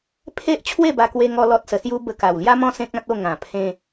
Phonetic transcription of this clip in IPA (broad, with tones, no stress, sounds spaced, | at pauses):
pʰ e˦ ʔ t͡ɕʰ w e˥˧ b a˧ k w e˧ ŋ ɔ˧ l ɔ˦ t̚ s ə˧ s j u˦ b ə˧ k a˨˩ w l j a˦ m ɔ̃˦ s ẽ˦ k̚ ã˦ t̚ o˥˧ ŋ ã˨˩ pʰ ẽ˧